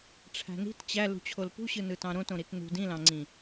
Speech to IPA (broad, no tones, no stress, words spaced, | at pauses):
ʈ͡ʂʰæ̤ni̤t t͡ɕæ lṳt͡ɕʰolpṳɕɯ nɯtɑ̃ɾõt õɾitnṳ dĩlɑ̃ŋ͡ǀĩ